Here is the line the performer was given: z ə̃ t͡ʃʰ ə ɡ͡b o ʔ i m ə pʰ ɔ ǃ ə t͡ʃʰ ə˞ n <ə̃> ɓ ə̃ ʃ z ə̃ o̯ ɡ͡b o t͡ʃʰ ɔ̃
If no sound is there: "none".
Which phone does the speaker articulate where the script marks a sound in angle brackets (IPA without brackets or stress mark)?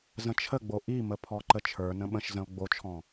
ə̃